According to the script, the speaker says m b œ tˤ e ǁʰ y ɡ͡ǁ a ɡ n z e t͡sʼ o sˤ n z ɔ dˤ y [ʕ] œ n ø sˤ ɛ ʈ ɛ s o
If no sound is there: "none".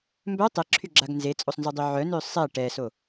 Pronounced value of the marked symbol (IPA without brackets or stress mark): ʕ